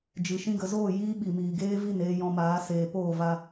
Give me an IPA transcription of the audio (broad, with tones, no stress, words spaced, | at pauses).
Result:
d͡ʒɨ˨ ʃĩ˧ɡə˨zoː˦˨ jiː˦ ɓi˨miː˨ɡeː˦vi˦˨n eː˦jɔ̃˧maː˨˦ seː˨ poː˦˨va˧